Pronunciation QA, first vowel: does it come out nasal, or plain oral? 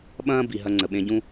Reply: nasal